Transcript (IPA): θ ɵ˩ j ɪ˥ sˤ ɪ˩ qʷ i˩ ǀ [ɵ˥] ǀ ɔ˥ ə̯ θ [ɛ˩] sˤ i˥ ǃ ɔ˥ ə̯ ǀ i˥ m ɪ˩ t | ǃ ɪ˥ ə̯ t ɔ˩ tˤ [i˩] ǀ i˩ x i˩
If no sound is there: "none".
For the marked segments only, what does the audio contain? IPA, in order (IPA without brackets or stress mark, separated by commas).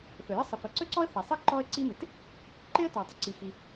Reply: ɵ˥, ɛ˩, ɪ˩